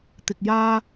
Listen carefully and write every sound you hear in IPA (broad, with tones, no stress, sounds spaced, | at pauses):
t̪ ɪ˧ k̚ j aː˥